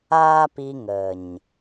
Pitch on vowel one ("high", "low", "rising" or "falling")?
high